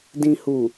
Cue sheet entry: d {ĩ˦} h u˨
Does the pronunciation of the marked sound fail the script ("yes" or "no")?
yes